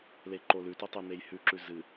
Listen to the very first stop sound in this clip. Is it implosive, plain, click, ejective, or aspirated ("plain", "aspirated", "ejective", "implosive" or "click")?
click